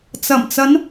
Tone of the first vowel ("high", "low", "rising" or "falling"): low